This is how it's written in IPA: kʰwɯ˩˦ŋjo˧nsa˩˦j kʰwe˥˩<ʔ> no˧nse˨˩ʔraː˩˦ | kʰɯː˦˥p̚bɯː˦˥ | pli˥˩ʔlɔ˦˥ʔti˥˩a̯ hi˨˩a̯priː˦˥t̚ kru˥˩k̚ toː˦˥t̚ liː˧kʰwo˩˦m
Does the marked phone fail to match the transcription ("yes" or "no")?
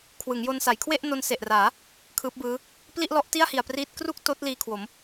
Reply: no